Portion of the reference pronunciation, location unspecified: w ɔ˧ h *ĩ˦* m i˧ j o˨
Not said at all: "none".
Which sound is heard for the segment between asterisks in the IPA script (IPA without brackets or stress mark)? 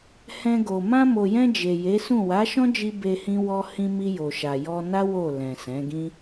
ĩ˧